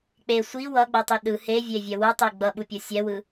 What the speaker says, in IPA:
k͡p e sʷ i w ʌ ɡ͡b o tˤ i ɗ ɯ h e vʲ e vʲ ɛ w u tˤ i ɡ͡b ʌ ɓ u pʲ o sʲ ɛ w ɯ

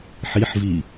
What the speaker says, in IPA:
ħ i ħ v i

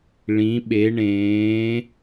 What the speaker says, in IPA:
ɭ ĩ˩˧ ɓ e˩˧ ɳ ẽː˩˧

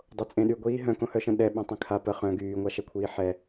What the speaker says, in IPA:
dˤ o t͡sʼ ẽ ɗ y ɡʷ iː ɦ œ̃ k õ h œ ʃ ə̃ ɗ ɛ ɓ ẽ tˤ ẽ kʰ a p ə χ œ̃ ɡ yː ŋʷ a ʃ ɛ kʷʰ iː ħ ɛ

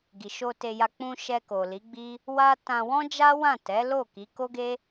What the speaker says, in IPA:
ɡ i˨ ʃ o˧ t e˧ j a˧ k͡p ũ˧ ʃ ɛ˧ k o˨ l i˨˦ ɡ͡b i˦ | w a˦ t ã˧ w ɔ̃˦ d͡ʒ a˦ w ã˦˨ t ɛ˨˦ l o˦˨ k i˨˦ k o˦ ɡ e˦

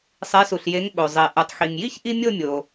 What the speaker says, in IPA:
sˤ e˩˥ s u˩ ɬ j e˩˥ ŋ ɓ o˩ zˤ i˩ ʔ u˩ tˤ x i˩ ŋ j i˥ ç ʔ i˥ mʲ o˥˨ mʲ o˩

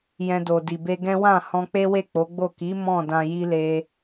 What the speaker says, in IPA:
j ɛ̃˧ d o˨ d i˨ b e˧ ɡ ɛ̃˦ w ã˦˨ h ɔ̃˧ k͡p e˦ w e˦˨ k͡p o˨˦ ɡ͡b o˦˨ k i˨˦ m ɔ̃˦˨ d ã˧ j i˦ l e˧

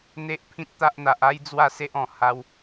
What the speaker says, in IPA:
n̪ e˦ ʔ pʰ ĩ˦ t̚ t̪ a˦ ʔ n̪ a˨ ʔ a˦ j d͡z w a˥˧ s e˦ ʔ ɔ̃˨˩ h a˧ w

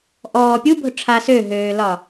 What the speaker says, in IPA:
ʔ ɔː pʲ u bʱ ʊ ʈ͡ʂʰ a s ø ɦ øː l ɒ

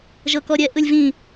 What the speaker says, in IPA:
ʒ ɤ k ɔ ɾʲ ɛ ʔ ɯ lʲ v ĩ

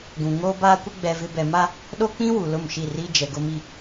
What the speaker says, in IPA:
ɡ ũ˨ ŋ oː˦ b aː˦ kʷ ɪ˦ ɡ͡b ɛ˨ v ɪ˨ b ɛ˨ m a˦ | ɗ o˦ k͡p ĩ˦ w u˨ l ʊ˦˨ m ʃ i˦˨ r iː˦ d͡ʒ ɛ˨ ɡ ʊ˦ m i˦

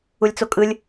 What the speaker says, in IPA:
u lʲ t͡s o kʼ ɯ lʲ

